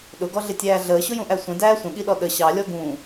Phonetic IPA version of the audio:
ɗ ʊ ɡ ɔ ɮ ɪ tʲ æː ɮ əː ɕ ʊ j ũ ʔ æ sʷ ə̃ d æː sʷ ə̃ ɠ i ɗ ɔ ɗ ə ɕ ɑ lʲ ɔ ɡ ũː

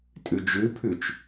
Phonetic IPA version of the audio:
tʼ ʉ d͡ʒ ʉ pʰ ʉ t͡ʃ

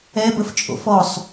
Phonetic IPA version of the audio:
ɛ b ə f t͡ʃʼ o̰ f ɔ sˤ

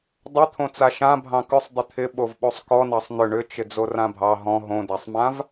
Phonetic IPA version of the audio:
dˤ ʏ t̪ʰ õ t͡s a ʃ ã bʱ ɑ̃ k ʏ sˤ dˤ ʏ t̪ʰ ɪ ɓ o v ɓ o sˤ k ɔ n ɑ sˤ n̪ ʏ ɳ ʏ t͡ʃ ɪ d͡z o r ã bʱ ɑ ɦ ɔ̃ ɦ õ d a sˤ m ã v

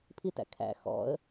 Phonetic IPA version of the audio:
pʰ i t æ̰ kʰ æ̰ x ɔ̰ ə̯

